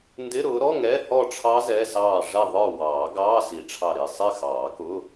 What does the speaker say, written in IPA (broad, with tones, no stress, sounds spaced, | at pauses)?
n d ɪ˧˥˧ ɾ ʊː˨˦ ɾ ɔ˧˥˧ ŋ ɛ˧˥˧ h ɔ˥˨ ʈ͡ʂʰ ɑ˦˥ z ɛ˧˥˧ s ɑː˥˨ ʐ ɛ˥˨ ðˤ ə˞˥˨ w ɑː˨˩˦ ɡ ɑː˧˥˧ s i˨˩˦ ʈ͡ʂʰ ɑ˧˩ ɾ i˧˩ sˤ ɪ˥˨ x ɑː˨˩˦ k ʊ˧˥˧